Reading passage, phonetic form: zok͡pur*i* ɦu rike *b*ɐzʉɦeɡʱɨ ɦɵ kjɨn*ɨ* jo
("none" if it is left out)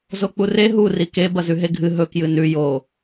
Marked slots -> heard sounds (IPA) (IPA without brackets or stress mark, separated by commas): e, b, ʉ